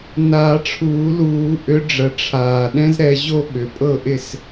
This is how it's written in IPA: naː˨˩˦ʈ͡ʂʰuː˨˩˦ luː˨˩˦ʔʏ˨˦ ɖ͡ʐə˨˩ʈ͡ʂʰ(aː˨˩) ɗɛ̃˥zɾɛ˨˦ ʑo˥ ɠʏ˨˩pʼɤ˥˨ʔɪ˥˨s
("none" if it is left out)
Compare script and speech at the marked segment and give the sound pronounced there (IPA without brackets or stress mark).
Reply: aː˨˩